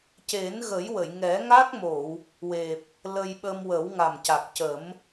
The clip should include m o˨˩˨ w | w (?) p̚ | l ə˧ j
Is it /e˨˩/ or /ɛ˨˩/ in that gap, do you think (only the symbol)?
e˨˩